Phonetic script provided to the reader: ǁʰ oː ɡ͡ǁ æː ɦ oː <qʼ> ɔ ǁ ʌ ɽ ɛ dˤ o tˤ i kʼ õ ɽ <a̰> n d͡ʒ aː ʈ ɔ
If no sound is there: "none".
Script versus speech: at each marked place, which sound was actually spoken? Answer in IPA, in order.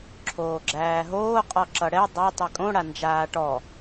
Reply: qʼ, a

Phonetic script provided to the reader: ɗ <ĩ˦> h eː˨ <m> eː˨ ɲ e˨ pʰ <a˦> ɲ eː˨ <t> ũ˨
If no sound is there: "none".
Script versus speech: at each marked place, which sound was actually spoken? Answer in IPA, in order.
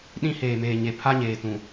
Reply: ĩ˦, m, a˦, t

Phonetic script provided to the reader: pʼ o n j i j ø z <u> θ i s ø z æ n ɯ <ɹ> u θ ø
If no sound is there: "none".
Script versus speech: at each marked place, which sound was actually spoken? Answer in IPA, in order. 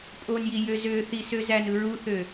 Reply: ø, ɹ

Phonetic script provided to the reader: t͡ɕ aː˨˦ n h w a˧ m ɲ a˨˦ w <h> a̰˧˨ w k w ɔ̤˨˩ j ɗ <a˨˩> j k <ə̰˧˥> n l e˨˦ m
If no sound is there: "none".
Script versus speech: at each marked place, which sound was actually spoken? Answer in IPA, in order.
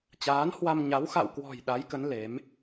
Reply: x, a˨˦, ə˨˦

